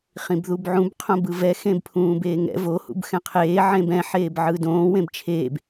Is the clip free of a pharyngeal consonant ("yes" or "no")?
no